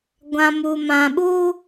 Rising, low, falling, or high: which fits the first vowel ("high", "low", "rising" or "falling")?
low